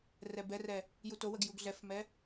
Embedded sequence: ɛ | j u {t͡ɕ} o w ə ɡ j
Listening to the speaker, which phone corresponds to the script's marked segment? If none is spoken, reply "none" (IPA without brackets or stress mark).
t